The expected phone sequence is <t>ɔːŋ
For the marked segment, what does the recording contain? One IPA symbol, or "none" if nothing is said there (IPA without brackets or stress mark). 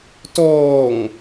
t